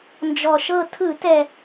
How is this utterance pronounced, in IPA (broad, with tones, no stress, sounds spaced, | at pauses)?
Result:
n d͡ʒ ɔ˨˩ ʃ ɤ˥˨ tʰ ɯ˧˩˧ t ɛ˨˩